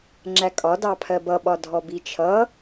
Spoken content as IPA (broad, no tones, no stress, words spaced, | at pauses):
ŋ͡ǁækʼɒ dɑpʰɜbʌ ɓɒdʱɔbit͡ʃʰʌ